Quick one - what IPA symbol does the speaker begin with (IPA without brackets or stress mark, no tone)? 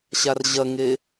ɕ